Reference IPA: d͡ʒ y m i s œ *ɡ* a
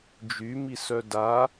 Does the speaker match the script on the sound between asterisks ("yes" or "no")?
no